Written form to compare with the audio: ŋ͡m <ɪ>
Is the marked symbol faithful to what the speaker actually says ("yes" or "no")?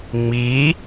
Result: no